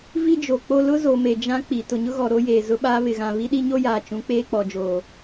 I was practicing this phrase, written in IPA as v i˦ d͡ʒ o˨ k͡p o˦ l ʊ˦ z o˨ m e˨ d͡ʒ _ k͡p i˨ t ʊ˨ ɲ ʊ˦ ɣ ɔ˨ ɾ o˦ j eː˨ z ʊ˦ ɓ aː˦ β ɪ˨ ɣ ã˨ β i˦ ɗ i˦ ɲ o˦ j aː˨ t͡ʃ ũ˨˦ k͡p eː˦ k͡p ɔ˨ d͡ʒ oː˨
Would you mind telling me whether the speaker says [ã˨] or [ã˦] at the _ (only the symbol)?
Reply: ã˦